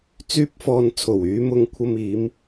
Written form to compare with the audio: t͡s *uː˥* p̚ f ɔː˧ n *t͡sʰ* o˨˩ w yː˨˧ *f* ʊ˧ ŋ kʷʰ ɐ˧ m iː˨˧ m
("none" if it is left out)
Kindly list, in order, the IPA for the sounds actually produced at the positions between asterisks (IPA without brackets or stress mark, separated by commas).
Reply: yː˥, t͡sʰ, m